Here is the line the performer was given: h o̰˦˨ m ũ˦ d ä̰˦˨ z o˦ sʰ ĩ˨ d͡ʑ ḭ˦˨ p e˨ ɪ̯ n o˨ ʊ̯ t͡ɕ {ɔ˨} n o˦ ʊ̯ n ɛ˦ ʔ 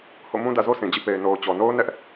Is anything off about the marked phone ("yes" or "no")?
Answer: no